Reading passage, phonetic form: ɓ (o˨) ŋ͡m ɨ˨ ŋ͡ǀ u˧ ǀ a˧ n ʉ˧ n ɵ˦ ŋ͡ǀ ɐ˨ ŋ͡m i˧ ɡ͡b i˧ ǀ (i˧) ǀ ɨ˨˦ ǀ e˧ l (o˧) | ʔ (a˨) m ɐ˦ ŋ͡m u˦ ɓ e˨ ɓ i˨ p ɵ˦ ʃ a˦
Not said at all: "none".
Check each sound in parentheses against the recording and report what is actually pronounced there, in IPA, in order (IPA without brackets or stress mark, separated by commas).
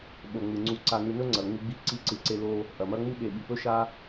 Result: o˨, i˧, o˧, ɐ˨